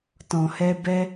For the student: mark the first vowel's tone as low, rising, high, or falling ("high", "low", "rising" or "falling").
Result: low